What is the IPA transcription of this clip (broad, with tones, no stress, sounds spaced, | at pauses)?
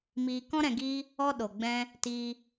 m iː˧ k ɔ̃˦ ɾ ɛ̃˧ ɡ iː˦ | ɔ˦ ɗ o˨ ɡ͡b ɛ̃˧ | t iː˧